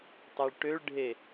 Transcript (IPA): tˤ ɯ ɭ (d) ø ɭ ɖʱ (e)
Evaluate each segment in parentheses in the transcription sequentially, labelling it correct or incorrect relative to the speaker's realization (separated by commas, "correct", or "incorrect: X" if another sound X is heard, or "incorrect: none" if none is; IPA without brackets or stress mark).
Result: incorrect: ʈ, correct